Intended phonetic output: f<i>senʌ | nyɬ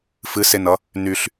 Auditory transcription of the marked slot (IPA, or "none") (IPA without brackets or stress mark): ɨ